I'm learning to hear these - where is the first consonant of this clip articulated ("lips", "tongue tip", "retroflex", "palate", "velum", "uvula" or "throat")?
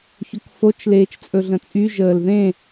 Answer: palate